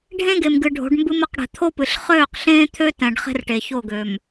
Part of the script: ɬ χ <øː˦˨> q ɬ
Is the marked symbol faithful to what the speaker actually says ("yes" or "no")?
yes